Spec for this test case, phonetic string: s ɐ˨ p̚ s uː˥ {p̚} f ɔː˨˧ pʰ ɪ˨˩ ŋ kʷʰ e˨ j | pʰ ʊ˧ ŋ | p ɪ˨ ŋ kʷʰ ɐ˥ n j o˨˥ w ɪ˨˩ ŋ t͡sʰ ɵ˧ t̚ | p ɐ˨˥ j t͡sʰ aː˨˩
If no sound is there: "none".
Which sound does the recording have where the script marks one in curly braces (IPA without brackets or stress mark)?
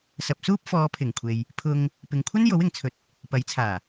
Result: p̚